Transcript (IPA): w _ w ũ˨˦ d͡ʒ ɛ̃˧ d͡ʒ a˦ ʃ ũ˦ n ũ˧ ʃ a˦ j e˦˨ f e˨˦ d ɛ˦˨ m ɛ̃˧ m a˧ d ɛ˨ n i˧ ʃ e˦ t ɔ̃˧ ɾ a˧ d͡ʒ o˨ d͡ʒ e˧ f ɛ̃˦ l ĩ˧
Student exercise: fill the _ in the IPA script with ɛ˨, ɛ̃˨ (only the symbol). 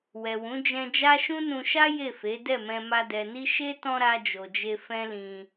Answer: ɛ˨